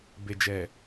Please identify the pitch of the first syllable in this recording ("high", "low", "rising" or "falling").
low